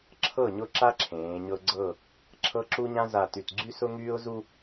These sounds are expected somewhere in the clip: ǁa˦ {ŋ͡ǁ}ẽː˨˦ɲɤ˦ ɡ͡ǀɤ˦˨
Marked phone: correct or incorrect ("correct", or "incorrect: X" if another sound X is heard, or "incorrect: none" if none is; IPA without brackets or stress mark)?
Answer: incorrect: ǁʰ